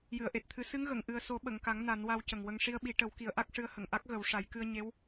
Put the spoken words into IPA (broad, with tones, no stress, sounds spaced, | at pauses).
j ɨ˨˩˨ ə̯ ʔ e˨˩ t̚ t̪ʰ ɨ˨˩˦ s ɨ˧˥ ŋ ɣ ə˨˩˨ ŋ ʔ ɨ˨˩ ə̯ s o˨˩˦ ɓ ə˨˩˨ ŋ k a˨˩˦ ŋ n a˨˩˦ n w a˧ w c ə˨˩ ŋ w ə˧ ŋ ʂ i˧ ə̯ ɓ i˨˩˦ ʈ ə˨˩˦ w k i˨˩˦ ə̯ ʔ a˦˥ k̚ ʂ ɨ˧˥ ə̯ h ə˨˩˨ ŋ ʔ a˦˥ k̚ ɣ ə˨˩˦ w ʂ a˨˩˦ j k ɨ˧ ə̯ ɲ e˧˥ w